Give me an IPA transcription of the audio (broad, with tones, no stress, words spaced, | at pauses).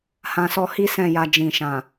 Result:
hã˨ sɔ˧hi˦ sɛ̃˦˨ja˧ d͡ʒĩ˨ʃã˨